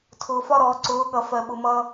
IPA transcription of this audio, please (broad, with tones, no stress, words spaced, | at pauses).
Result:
tʰʊː˨fɒ˦ ɾɔː˨ǀʊː˨˦ɠʌ˨ fɜ˨ɓʊ˨mʌː˦